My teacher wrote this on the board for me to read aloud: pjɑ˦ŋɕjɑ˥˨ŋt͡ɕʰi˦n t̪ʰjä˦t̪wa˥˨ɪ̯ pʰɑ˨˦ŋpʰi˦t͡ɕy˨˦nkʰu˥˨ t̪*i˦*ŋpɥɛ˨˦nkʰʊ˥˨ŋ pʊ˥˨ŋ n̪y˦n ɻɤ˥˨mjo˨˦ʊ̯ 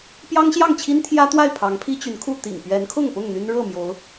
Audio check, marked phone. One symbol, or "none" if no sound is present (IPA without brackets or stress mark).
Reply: ḭ˨˩